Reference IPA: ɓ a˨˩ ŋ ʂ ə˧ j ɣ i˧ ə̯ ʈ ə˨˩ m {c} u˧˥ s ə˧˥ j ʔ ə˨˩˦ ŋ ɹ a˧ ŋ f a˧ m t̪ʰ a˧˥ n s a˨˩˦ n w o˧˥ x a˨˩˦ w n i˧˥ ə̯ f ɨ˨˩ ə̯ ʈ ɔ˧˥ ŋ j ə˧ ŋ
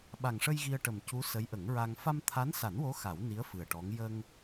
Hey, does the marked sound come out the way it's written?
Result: yes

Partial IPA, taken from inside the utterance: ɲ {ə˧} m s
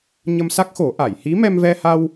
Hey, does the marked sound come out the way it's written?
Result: yes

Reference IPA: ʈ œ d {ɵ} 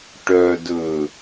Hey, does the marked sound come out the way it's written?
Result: yes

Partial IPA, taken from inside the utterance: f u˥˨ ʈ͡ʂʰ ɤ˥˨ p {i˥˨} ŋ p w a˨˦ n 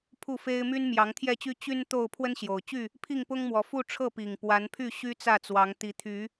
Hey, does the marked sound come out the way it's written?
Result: no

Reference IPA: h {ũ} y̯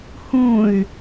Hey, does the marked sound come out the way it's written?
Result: yes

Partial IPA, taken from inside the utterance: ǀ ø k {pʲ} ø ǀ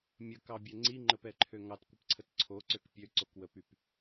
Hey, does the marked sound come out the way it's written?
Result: yes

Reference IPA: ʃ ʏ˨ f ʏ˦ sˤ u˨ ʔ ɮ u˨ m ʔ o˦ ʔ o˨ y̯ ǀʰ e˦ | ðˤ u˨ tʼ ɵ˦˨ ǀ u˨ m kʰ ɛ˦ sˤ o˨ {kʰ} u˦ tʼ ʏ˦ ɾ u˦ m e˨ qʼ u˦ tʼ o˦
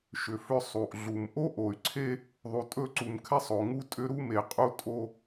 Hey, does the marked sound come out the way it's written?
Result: no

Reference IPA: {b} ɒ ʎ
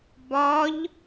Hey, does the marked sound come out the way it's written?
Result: yes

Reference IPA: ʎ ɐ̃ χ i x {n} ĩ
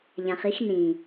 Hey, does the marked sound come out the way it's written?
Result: yes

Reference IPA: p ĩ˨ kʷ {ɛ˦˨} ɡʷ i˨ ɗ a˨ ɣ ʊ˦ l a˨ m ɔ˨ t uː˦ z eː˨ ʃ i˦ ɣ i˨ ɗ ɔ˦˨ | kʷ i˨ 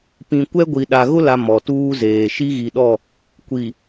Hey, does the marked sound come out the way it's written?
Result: no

